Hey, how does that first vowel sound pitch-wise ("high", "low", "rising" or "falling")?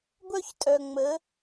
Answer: high